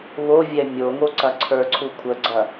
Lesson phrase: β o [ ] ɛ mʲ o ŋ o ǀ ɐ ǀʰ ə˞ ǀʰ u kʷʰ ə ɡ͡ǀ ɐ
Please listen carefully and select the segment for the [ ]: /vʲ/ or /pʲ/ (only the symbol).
vʲ